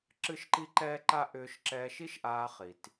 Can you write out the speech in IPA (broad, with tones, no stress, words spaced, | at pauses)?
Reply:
ǁɨ˥ʃǃi˥ǃɛː˥ǃa˥ ʔʏː˧ʃǁɛː˧ʃi˥ʃʔaː˧ χi˩t